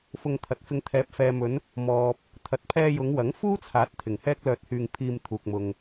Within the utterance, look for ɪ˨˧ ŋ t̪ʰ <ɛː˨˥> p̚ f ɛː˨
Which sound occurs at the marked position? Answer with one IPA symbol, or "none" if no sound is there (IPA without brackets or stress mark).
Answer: ɛː˨˥